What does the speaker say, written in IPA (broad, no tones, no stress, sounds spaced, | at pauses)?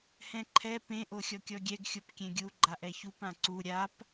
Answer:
h ɛ̃ ǃʰ ɛ p ẽ ʔ o xʲ ɔ kʲ ɔ ɡʲ ɛ ɡ xʲ o p kʲ ɛ̃ ɡʲ u ɡ͡ǃ a ʔ ɛ ç u p ã ǀ u ɾʲ a p